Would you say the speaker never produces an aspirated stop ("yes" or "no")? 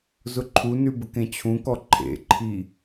no